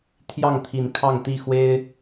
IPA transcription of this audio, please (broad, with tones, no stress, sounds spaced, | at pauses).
t̪ʰ j ɑ˥˨ ŋ t̪ʰ i˨˦ n kʰ ɑ˥˨ ŋ t̪ i˥˨ x w e˦ ɪ̯